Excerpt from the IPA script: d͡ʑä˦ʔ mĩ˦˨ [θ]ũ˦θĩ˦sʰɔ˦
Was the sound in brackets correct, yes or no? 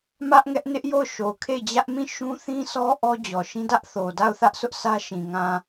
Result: no